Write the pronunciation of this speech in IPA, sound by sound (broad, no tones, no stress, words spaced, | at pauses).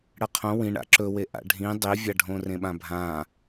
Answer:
ɽɐqʰõ wĩɳa̰ ǁɵwe ʔa̰ɖʱĩ dˤivʲaɖʱõ rẽɓãbʱã